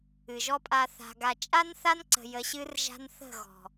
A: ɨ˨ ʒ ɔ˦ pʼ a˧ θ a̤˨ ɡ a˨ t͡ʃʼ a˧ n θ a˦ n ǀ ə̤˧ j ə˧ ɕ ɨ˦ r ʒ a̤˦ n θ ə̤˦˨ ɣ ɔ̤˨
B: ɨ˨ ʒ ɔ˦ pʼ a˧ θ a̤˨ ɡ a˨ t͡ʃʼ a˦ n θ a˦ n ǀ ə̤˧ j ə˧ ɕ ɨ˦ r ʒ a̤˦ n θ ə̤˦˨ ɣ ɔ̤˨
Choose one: B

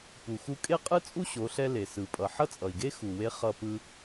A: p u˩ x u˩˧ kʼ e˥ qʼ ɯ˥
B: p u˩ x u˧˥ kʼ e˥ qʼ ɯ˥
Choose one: B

